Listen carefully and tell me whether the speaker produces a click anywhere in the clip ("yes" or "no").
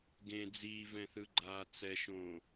yes